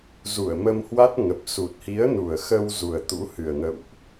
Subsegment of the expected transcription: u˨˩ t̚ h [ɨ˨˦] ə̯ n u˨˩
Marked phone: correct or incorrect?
incorrect